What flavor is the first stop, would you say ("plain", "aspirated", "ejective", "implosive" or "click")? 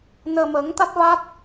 plain